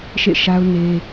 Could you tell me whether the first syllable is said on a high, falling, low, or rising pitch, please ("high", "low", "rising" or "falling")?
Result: falling